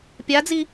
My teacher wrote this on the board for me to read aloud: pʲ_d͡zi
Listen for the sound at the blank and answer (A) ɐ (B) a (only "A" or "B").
B